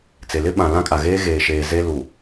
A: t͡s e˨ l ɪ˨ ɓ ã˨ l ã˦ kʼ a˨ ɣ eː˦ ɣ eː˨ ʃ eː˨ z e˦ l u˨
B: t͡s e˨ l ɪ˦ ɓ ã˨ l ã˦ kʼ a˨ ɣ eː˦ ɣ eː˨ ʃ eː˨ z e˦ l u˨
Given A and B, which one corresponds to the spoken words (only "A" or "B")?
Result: B